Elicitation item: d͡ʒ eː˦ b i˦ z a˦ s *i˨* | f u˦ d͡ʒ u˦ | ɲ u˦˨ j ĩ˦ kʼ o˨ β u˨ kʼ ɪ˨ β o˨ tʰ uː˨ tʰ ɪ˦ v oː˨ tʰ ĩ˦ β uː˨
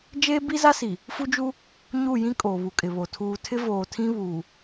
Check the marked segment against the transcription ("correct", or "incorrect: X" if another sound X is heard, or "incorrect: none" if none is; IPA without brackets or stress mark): correct